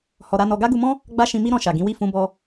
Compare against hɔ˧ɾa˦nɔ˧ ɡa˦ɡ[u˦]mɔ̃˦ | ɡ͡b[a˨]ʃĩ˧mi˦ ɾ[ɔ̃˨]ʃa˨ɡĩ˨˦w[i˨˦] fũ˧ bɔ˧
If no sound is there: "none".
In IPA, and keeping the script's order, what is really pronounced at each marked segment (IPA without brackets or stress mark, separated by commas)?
u˧, a˦, ɔ̃˧, i˦˨